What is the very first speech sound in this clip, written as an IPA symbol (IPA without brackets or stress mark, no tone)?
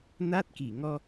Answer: n